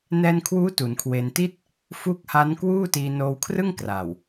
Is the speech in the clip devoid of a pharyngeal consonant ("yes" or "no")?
yes